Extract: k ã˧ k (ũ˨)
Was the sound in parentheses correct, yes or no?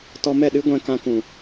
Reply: yes